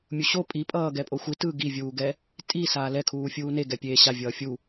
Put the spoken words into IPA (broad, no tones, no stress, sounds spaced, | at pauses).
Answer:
mʲ u ɕ o pʼ i pʼ ʌː ɡ ɛ pʼ o xʷ i t ɯː ɡ i vʲ uː ɡ ɛ | tʼ i s aː l ɛ kʰ uː fʲ uː n e ɡ ɛ pʲ eː ɕ a vʲ ʌː fʲ u